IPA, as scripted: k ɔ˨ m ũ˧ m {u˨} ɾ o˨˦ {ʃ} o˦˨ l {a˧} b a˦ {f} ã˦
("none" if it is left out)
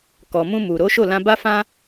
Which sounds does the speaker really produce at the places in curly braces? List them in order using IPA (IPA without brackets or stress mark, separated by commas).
u˨, ʃ, ã˧, f